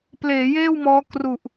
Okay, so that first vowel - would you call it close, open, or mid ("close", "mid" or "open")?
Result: mid